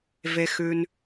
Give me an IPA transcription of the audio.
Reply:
ve˨ xʉ˨n

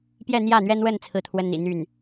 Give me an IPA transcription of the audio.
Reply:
pjɛ˥˧n̪jä˥˩n̪ɥɛ˥nwə˥˧n t͡sʰɹ̩˥˩t̪ʰwə˥nn̪ḭ˨˩ n̪y˥˩n

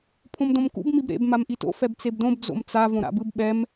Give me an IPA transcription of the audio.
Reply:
pʰõmdõmkṵb mibɾḛb mamʔito̰ fɛbt͡sebdõb d͡zo̰mt͡sa võɾa̰bɯb ɓɛm

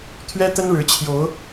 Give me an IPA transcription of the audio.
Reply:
t̪ʰɥɛ˦t̪ə˦nɻɻ̩˨˦t͡ɕʰjo˨˦ʊ̯

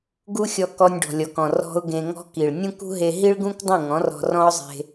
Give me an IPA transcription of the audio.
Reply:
ɡu˦xʲɔ˧ kɔ˧nʲɖɔ̤˨lʲɔ˨kɔ̃˨ rɔ̤˧ʊ̯ ɡẽ˧ŋɔ̤˦ki˨ɭ nʲũ˦kṳ˦ɦe˧ ɦi˦ɭɡũ˦k dˤũ˦˨ŋɔ̃˨˦rɔ̤˧ rɔ̃˦ʊ̯zˤe̤˧

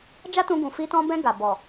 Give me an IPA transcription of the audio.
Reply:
d͡ʒa˦tũ˧ ɡũ˨fi˧tɔ̃˧bɛ̃˧ ɡa˨ bɔ˨

